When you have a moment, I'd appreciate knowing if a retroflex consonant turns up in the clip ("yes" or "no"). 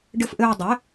yes